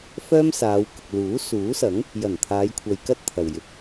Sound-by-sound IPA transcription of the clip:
f œː˥ m s aː˨˧ w k ʊ˨ k̚ l uː˨˥ s uː˨˥ s ɐ˨˥ ŋ | j ɐ˨˩ n t̪ʰ aː˨˧ j kʷʰ ɐ˧ j k ɐ˥ t̚ t̪ʰ ɐ˨ w j ɪ˨ k̚

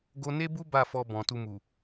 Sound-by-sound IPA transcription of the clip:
ɡ o˧ n e˦ b u˦ b a˦˨ f ɔ˧ b ɔ̃˨ t u˧ m u˨

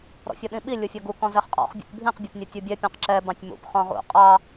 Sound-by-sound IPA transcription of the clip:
ɾ ɔ̰ fʲ ʌ ɗ ĩ ɓ i lʲ ʊ fʲ ʌ ɡ u k ɔ̃ z ɛ χ qʼ ɔ̰ χ bʲ ṵ tʲ bʱ ĩ q bʲ ʌ p nʲ ɛ tʲ u bʲ ɛ pʲ ɔ̃ q ǁ ɛ b ɑ̃ tʲ m ṵ p χ ɔ̃ ʁ ṵ qʼ ɑ

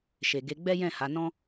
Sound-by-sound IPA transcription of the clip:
ʃ e˨ ɡ e˧ ɡ͡b ɛ˦ j ɛ̃˦˨ h a˨˦ n ɔ̃˦

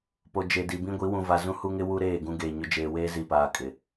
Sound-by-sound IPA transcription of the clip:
p o˨ d͡ʒ e˨ d i˨ b ĩ˦ ɡʷ i˨˦ w ũ˨ v a˨ z ũ˦ h u˦ ŋ ɪ˦ w u˦ ɾ eː˦˨ ɡ ũ˦ ɡ eː˨ ɲ ʊ˦ d͡ʒ eː˨ w eː˦ z i˨ p aː˨ kʼ ɪ˨

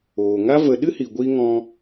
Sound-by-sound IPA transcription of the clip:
oː˨ ŋ a˦ v ə˧ ɗ ɨ˦ h i˨ ɡʷ i˧ ŋ ɔ̃˧

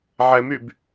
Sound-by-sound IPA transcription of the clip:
ʕ ɛ m y b

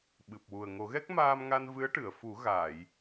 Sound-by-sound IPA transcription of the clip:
ɓ ɨ˨˩ p̚ w u˨˩ ə̯ ŋ o˨˩˦ ɣ ɛ˦˥ k̚ m aː˧ m ŋ a˧ n v ɨ˧˥ ə̯ ʈ ɨ˨˩˨ ə̯ f u˨˩˦ ɣ aː˨˩˨ j

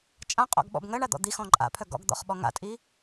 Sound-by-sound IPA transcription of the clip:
t͡ʃʼ ã qʼ ɔ̰ ɡ ɓ ɔ̰ b ŋ ɜ ɳ a d̪ ɔ̰ d̪ i x ɔ̃ ǃʼ a̰ pʰ œ ɡ ɔ̰ ɡ d̪ ɔ̰ χ ɓ ɔ ŋ a̰ tʼ i

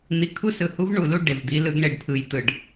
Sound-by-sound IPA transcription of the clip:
n̪ i˨ kʰ u˦ s ɯ˨ h u˦ v ɳ u˨ l u˦ ɖ e˨ v d̪ i˦ l ɯ˦ ɡ ɳ e˦ ɖ pʰ ɯ˦ j t̪ ɯ˦˨ ɖ

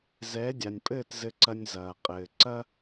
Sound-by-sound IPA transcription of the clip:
z ɛː˩˥ dʲ a˩ nʲ pʼ ɘː˥˩ t z ɘ˧ ǀ ɐ˧ nʲ z ɐː˩ qʼ ɘː˩ ǀ ɐ˥

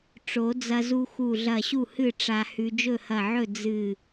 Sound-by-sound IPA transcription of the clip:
ʈ͡ʂ o˨˩˦ d͡z ɐ˧ z u˧ x u˧˩ ɮ ɐ˧˩ ɕ u˥˩ h ɨ˥˩ ʈ͡ʂ a˧ h ʉ˧ d͡ʒ ɵ˥˩ h ɐ˧˩ ʕ ɵ˥˩ d͡z ɨ˧˩

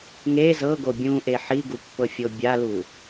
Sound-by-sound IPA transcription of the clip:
ŋ e z ɤ ɡ o bʲ ũ ʔ e ħ i ɡ u pː ɤ fʲ o bʲ a l u

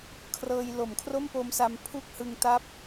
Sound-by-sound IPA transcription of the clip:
kʰ r ɤː˧ j l o˩˦ m kʰ r o˥˩ m p o˧ m s a˧ m pʰ u˥˩ k̚ h ɯ˧ ŋ t a˥˩ p̚

